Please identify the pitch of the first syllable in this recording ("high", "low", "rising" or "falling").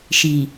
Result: low